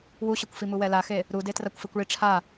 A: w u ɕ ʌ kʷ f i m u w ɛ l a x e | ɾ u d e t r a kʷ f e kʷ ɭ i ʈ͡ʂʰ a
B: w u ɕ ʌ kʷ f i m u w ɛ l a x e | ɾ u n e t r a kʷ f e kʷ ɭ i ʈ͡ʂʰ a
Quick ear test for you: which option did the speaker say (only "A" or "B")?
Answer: A